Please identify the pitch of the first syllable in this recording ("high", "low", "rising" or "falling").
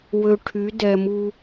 low